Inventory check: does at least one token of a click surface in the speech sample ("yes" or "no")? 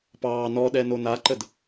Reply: yes